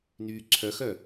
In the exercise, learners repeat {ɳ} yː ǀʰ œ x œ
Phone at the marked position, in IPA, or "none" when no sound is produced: n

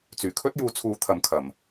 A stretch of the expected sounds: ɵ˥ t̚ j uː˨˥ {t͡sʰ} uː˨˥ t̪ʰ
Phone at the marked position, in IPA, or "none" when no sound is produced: t͡sʰ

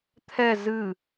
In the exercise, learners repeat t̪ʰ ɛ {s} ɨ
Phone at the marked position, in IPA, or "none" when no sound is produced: z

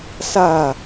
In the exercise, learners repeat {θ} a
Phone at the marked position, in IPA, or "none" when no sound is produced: s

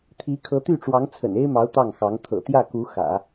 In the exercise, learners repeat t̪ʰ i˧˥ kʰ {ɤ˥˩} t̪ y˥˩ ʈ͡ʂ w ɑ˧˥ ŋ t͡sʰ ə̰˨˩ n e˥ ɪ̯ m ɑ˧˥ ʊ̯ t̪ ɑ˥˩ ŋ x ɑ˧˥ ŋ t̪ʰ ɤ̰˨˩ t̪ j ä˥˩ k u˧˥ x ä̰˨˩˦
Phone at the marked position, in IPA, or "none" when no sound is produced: ɤ˧˥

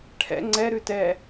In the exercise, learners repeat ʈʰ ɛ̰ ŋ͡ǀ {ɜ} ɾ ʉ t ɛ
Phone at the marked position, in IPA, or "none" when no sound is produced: ɛ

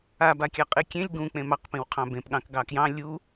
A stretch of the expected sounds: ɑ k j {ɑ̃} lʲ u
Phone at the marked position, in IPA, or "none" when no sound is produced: ɑ̃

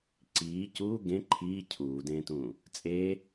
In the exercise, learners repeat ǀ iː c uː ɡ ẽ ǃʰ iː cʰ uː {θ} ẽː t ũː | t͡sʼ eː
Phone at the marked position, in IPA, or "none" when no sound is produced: d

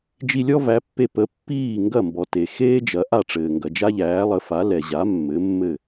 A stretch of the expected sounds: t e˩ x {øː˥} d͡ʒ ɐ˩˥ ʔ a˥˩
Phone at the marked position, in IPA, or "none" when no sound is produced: eː˥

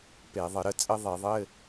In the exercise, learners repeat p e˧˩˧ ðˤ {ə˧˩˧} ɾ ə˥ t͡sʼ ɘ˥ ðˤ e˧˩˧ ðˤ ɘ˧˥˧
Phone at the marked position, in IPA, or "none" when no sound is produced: ə˧˩˧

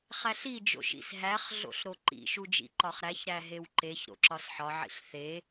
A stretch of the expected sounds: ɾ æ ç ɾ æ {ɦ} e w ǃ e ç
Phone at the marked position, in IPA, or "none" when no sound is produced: ɦ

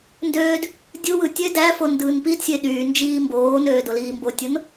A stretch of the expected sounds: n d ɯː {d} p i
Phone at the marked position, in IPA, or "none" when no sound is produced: n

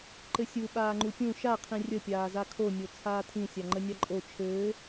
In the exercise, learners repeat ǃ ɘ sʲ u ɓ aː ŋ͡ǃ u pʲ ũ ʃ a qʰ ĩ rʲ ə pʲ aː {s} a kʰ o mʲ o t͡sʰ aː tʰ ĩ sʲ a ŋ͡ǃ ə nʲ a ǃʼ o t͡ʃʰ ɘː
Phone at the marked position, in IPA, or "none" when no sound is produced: z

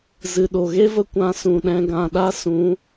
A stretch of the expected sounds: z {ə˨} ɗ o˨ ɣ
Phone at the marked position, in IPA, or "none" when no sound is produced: ɨ˨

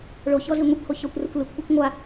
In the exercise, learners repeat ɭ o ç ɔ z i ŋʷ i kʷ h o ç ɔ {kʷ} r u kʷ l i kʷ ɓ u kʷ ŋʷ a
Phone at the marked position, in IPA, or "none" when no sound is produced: kʷ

